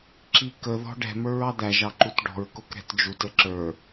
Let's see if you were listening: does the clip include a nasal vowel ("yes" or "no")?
no